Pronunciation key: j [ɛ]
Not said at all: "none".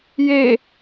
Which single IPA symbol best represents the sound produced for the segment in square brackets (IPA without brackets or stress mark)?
e